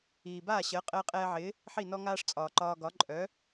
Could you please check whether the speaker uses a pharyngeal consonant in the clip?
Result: yes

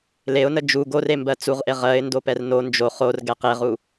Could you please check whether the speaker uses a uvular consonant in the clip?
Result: yes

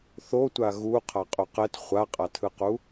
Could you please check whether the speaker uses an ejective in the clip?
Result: yes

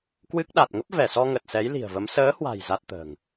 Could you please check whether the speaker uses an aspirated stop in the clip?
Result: no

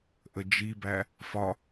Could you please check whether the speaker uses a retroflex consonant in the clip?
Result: no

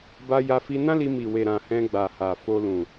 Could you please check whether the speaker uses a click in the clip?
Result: no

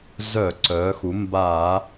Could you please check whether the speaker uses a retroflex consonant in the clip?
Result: no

